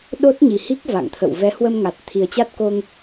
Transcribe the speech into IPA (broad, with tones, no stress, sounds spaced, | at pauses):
ɗ o˦˥ t̚ ɲ i˨˩ h i˦˥ k̚ v a̰˧˨ ŋ t̪ʰ ə̰˧˨ w v ɛ˨˦ h w ə˧ m ŋ a˨˩ t̚ t̪ʰ i˨˩ ə̯ t͡ɕ a˦˥ t̚ k o˧ ŋ